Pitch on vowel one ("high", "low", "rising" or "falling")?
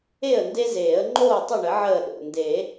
falling